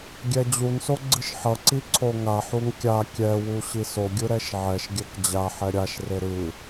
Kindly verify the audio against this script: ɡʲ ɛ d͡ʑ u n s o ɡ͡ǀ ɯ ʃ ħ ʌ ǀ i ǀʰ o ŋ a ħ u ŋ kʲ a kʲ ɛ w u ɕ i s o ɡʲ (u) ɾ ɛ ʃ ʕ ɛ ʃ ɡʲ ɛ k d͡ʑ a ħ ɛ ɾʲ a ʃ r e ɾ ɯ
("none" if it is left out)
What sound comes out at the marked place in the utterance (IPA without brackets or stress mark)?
ɯ